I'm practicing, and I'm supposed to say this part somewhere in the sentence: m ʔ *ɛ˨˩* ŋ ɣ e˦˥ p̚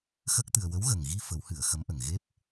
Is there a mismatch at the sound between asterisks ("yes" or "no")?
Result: yes